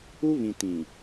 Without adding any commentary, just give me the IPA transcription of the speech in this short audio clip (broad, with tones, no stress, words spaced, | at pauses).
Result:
u˦βĩ˨ tĩ˨